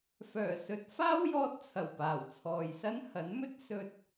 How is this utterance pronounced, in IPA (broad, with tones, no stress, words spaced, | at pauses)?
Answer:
fœː˨˩sɵ˨˥t̚ faː˥wjɔː˧t̚t͡sʰɐ˨˩wpaː˨˩w t͡sʰɔː˨jsɐ˥nhɐ˨˥nmɵ˥t̚ sɵ˧t̚